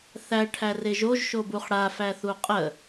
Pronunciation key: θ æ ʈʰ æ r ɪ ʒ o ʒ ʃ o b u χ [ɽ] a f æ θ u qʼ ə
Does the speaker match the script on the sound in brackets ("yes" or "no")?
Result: yes